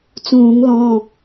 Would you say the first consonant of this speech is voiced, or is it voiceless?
voiceless